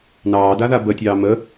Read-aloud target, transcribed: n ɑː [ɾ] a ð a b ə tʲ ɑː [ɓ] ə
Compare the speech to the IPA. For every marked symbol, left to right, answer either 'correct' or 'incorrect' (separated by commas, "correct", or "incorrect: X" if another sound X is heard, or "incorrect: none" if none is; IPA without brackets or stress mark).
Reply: incorrect: d, incorrect: m